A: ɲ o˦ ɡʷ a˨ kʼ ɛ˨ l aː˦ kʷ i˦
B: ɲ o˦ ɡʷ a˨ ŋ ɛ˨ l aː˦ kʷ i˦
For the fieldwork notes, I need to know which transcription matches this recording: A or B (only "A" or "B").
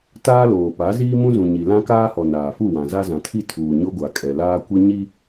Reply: A